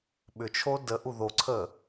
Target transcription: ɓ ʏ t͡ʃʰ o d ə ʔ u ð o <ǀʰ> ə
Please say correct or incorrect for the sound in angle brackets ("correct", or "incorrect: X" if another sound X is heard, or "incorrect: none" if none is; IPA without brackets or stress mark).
correct